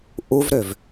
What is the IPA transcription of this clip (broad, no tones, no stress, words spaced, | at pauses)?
ʔuvɾøv